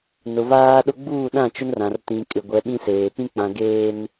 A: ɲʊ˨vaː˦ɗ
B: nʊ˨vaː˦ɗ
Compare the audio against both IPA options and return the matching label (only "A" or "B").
B